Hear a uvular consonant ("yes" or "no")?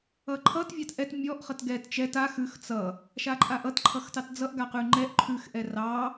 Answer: yes